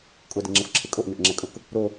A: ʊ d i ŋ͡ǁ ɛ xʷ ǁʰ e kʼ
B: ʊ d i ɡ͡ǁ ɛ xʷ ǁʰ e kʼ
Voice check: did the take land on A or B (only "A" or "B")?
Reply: A